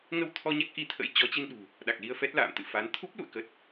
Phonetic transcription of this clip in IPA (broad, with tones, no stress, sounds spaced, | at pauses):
ŋ ə˧ w t̪ʰ ɔ˧ ɲ a˦˥ k̚ ʔ i˧ t̪ʰ ə̰˧˥ j t͡ɕ ɔ˨˦ t͡ɕ i˧ n ɗ ṳ˨˩ | ɗ a˨˩ k̚ l i˧ ə̯ f ɛ˦˥ t̚ l a̰ː˧˨ m t̪ ɨ̰˧˨ f a˨˦ n t̪ʰ u˦˥ p̚ l ṵ˧˨ ə̯ k ə˨˩ t̚